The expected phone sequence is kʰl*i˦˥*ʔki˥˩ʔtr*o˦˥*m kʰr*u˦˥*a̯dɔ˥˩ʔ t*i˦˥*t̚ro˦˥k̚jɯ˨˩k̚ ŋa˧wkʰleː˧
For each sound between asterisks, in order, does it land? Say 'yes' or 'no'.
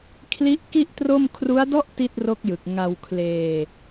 yes, no, yes, no

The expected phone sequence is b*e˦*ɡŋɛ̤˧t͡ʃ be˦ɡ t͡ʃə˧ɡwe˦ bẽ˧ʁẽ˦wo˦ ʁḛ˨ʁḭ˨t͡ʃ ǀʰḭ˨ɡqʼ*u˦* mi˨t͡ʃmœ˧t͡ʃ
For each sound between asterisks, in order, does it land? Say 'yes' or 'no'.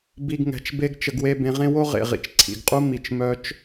no, yes

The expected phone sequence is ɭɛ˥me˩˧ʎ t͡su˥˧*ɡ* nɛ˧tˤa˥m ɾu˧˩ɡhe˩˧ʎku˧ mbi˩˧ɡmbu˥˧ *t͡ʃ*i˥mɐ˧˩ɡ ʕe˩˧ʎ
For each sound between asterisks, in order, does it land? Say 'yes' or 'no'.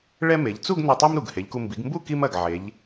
yes, no

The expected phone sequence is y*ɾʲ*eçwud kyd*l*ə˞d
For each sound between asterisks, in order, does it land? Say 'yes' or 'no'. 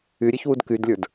yes, no

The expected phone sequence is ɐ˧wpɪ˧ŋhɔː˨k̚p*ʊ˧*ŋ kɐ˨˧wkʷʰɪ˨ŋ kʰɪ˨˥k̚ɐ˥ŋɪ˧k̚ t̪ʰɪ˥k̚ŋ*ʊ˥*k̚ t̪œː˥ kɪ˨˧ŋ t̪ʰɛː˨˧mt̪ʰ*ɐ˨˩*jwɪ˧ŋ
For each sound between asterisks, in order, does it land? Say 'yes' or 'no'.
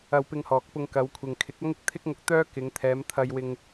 yes, no, no

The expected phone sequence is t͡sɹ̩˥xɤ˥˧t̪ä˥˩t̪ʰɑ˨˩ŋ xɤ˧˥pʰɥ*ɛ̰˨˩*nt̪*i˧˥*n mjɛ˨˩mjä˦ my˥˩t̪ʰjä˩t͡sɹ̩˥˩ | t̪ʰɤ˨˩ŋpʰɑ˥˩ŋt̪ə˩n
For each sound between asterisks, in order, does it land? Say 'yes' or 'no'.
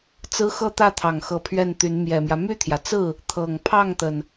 no, no

